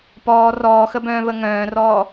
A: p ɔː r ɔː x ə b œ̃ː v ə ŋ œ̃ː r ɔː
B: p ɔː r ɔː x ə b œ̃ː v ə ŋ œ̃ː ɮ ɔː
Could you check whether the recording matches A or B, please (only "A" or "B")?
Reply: A